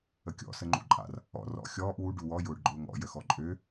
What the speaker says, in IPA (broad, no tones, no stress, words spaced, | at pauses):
əkʲɔ̰ səŋ͡ǃṵǃʼa̰r | ɔ̰ rɔ̰ xʲɔːʔ wu ɖuwɔ jʊːɖɡ͡ǃʊːŋɔ̰ jəxɔǃʼø